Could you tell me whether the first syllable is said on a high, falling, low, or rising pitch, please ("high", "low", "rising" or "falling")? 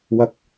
rising